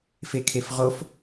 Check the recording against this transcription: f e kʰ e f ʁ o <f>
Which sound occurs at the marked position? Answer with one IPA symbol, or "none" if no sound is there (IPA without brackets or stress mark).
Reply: f